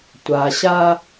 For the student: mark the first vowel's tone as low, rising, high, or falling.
low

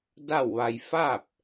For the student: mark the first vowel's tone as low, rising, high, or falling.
falling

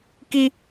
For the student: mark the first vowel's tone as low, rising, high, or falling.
high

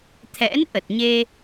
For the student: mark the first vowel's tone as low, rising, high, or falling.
rising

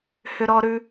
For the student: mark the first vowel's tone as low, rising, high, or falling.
low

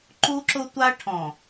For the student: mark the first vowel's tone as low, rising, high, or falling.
high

